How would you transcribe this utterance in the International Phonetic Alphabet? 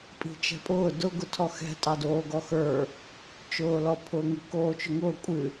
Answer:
pʼ i̤ t͡ʃ ɛ̤ pʼ ʊː d ʊ ɡ ʊ tʰ ɔ x ɛ̤ tʼ ɑ d oː ɡ ɔ x ə˞ | t͡ʃ ʊː l ɔ pʰ ʊː ŋ ɨ k oː t͡ʃ ʊ ŋ ʊː kʷʼ ɨ

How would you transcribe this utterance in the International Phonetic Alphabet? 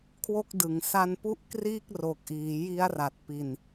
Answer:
kʰ w o˥˩ k̚ d ɯ˨˩ ŋ s a˧ n p u˥˩ ʔ k r iː˥˩ k̚ r o˨˩ k̚ ʔ iː˩˦ j i˦˥ a̯ r a˨˩ t̚ p i˧ n

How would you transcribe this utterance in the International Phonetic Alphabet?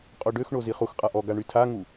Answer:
qʼ o ɖ ø x ɳ o z i χ u x qʼ a ʔ ɔ ɡ a ɳ y tʰ a ŋ u

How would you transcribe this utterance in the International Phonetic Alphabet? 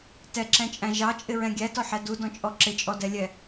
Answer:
t ɛ ǁ ɛ̃ t͡ʃʼ æ̃ ʒ ɑ t͡ʃʼ ɪ ɹ ɛ̃ ɡʲ æ t ɔ ħ ɛ d u d ɔ̃ t͡ʃʼ ɔ ǁ ɪ t͡ʃʼ ɔ d ɛ lʲ ɛ

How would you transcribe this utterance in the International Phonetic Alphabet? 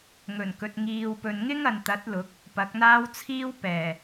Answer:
ŋ ɵ˨˩ n k ɵ˨ t̚ ŋ iː˨ w p ɵ˨ n ŋ ɪ˥ ŋ ɐ˨ n t̪ ɐ˨˥ t̚ l ʊ˨˥ k̚ | p ɐ˨˥ k̚ n̪ aː˥ w t͡sʰ iː˥ w p ɛː˨˩

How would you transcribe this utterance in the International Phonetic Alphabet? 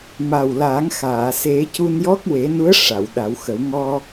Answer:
m a˨˩ w l aː˨˩˦ ŋ x aː˨˩˨ s e˨˩˦ c u˧ n j ɔ˦˥ k̚ w e˨˩˦ n u˧˥ ə̯ ʂ a˨˩˨ w ɗ a˨˩˦ w x ə˨˩˦ w ŋ ɔ˧

